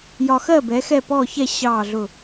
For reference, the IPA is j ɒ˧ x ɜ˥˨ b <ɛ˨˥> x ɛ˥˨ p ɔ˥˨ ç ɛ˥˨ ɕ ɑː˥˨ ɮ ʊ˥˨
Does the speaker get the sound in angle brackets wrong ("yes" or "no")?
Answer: no